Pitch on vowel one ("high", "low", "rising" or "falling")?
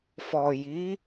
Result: low